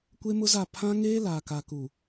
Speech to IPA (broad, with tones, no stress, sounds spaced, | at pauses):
kʷ e˦ m ʊ˦ z a˦˨ pʰ ã˦ ŋ eː˦ l aː˨ k a˨ k u˨